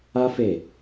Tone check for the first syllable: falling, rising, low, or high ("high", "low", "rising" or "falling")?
high